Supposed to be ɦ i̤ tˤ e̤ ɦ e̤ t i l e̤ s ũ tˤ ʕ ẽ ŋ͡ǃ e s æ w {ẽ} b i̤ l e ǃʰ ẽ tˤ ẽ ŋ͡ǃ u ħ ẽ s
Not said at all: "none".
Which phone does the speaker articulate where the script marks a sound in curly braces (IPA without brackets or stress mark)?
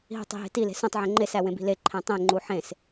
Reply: ẽ